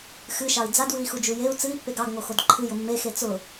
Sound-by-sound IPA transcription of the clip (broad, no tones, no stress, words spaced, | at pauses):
xɨʃɑi̯ d͡zadwɨi̯xud͡ʒu jeu̯ t͡sɨi̯pːeɡ ɑɡŋoxod ǃʰɨjʊ mːexe t͡sʊ